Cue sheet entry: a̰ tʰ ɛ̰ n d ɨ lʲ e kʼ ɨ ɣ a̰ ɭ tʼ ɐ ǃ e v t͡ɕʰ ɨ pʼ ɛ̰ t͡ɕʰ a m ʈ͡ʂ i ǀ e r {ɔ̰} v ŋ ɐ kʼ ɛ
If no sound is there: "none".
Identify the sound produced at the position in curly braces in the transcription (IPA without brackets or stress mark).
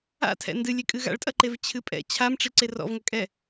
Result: ɔ̰